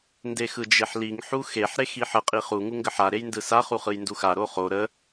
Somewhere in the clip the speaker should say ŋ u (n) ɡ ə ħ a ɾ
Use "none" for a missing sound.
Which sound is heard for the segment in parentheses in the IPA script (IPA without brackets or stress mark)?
ŋ